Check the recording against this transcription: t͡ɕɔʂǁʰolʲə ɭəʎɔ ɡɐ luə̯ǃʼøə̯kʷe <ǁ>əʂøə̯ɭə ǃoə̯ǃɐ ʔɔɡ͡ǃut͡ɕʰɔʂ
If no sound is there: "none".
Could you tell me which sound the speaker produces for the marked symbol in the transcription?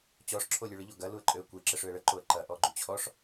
ǁ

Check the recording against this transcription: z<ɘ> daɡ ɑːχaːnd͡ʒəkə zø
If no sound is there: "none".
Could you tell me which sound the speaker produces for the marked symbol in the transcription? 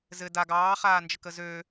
ɘ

